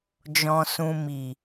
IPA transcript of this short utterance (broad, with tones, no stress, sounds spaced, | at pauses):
d͡ʒ ɔ̃˧ s ũ˧ m i˨